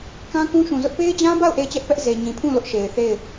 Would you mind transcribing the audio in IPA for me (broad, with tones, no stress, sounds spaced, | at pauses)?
k ã˦ k ũ˦ ʃ ũ˨ z ʊ˦ ʔ p e˦ ɪ̯ d͡ʑ ã˦ b a˦˨ ʊ̯ ʔ e˦˨ ɪ̯ t͡ɕ ɛ˦ ʔ p ɛ˦ ʔ z e˨ ɲ ĩ˨ pʰ ũ˦˨ l ʊ˦ ʔ ʃ e˨ ɪ̯ θ e˦˨ ɪ̯